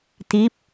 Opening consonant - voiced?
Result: no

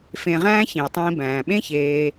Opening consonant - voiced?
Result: no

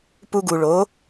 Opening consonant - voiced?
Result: no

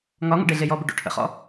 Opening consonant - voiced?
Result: yes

